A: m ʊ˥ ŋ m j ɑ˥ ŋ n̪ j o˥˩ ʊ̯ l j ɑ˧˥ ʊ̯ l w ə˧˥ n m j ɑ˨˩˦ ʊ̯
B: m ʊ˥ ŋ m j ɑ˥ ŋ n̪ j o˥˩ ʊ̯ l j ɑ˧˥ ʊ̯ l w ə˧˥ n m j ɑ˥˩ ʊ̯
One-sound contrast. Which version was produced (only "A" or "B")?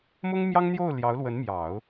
A